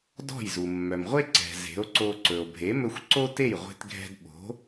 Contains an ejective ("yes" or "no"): no